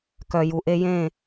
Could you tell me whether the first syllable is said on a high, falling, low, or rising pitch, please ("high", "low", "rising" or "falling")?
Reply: low